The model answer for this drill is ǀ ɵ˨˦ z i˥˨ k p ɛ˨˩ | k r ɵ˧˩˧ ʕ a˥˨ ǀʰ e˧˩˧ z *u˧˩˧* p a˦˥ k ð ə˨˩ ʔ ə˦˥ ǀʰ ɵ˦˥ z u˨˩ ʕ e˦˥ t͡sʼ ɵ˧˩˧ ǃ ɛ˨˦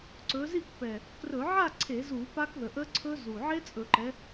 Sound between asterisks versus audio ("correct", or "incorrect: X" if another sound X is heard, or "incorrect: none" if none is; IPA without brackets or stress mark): correct